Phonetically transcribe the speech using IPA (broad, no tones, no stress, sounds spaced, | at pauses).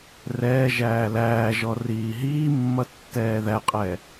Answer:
r ɛː ʒ æː l æː ʒ ɔ r iː ɦ iː mː ʌ tː ɛː ð æ qʼ ɛː